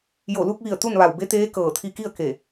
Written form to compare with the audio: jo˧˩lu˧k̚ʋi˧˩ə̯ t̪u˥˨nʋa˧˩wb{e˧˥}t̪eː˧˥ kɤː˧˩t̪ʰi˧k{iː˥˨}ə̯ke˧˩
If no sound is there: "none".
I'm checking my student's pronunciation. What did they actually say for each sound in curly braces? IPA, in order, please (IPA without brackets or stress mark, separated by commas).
e˧˥, i˥˨